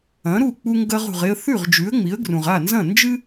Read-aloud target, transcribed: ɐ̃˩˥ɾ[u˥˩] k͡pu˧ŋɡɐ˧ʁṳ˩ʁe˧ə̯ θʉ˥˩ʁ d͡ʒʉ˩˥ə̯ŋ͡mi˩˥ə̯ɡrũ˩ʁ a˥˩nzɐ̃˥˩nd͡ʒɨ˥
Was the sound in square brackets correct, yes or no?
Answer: yes